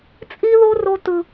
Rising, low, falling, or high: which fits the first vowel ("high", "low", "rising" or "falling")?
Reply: high